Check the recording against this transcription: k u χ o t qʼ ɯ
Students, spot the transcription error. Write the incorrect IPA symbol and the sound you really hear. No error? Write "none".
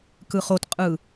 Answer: u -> ɯ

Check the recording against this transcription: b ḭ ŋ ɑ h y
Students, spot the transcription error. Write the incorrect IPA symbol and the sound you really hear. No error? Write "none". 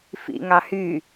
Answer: b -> f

